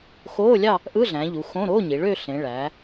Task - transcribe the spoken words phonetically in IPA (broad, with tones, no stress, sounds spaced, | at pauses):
x oː˧˥˧ lʲ ɑ˥˧ | ʔ ɯ˧˥˧ ɮ æ̃˩˧ ʎ u˩˧ x õ˧˥˧ ɾ oː˧˥˧ ɲ i˩˧ ɭ ø˥˧ ɬ ẽ˩˧ ɭ æː˩˧